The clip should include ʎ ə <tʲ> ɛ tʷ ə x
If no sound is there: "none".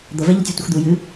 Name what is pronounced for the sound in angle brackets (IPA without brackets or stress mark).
tʲ